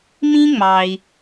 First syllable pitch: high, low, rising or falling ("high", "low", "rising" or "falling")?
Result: high